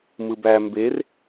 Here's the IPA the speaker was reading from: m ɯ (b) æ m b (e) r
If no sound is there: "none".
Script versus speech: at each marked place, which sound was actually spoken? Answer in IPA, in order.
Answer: b, e

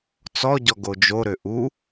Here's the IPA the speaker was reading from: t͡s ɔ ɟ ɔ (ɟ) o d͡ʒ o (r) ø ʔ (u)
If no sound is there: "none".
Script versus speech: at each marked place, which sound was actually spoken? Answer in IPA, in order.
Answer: ɡ, ɾ, u

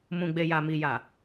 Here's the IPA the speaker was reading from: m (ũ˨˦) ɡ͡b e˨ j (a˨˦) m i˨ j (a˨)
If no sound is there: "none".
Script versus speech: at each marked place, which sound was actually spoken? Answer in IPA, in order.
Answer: ũ˨, a˨, a˨

